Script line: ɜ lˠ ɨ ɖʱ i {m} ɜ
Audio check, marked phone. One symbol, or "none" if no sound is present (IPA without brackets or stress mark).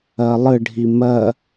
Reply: m